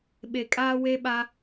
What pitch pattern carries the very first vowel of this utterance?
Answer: low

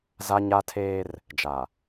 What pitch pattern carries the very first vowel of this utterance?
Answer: high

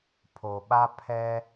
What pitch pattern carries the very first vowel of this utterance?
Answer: low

